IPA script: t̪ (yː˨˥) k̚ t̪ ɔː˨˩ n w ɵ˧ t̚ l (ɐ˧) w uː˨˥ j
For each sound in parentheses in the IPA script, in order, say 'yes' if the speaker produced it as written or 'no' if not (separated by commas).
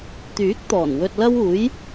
yes, no